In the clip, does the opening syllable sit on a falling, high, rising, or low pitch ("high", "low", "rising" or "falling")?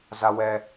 high